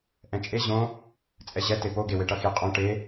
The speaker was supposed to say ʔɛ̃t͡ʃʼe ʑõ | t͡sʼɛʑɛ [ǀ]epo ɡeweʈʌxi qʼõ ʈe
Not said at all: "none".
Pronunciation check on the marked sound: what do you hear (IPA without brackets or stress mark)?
t